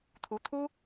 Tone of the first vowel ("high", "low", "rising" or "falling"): rising